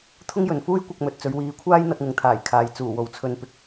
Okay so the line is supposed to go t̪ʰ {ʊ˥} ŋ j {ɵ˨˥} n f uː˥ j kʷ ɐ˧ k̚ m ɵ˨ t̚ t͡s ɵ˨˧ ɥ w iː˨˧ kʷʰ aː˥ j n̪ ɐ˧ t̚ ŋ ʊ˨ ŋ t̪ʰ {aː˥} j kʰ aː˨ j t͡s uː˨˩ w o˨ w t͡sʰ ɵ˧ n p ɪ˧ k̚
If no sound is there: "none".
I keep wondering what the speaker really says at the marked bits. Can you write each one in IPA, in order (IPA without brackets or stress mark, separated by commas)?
ʊ˥, ɵ˨, aː˨˩